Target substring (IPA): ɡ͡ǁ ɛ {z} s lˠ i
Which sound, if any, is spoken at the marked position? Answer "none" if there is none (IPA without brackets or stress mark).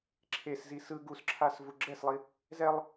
none